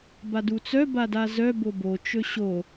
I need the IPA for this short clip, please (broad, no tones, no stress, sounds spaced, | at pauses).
b a d u t͡s œ b a d a z œ b o b o t͡ʃ ɵ ɕ o